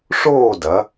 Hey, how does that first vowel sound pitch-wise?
falling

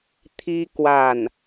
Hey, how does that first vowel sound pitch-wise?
high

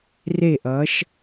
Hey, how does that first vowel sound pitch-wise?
falling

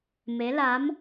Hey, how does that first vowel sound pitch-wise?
rising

